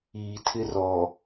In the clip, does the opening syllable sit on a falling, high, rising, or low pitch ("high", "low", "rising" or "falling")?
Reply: low